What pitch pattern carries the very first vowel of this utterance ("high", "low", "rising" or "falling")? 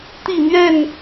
falling